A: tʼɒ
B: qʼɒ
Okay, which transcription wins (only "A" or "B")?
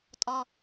A